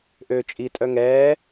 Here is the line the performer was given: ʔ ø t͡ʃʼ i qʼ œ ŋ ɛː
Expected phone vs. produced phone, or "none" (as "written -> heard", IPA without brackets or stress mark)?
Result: qʼ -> tʼ